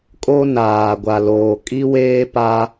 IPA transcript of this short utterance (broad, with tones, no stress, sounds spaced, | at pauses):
kʼ o˦ n aː˨ ɡʷ a˨ l oː˨ kʼ i˦ w eː˦ p a˦